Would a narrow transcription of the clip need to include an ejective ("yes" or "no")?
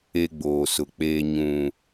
no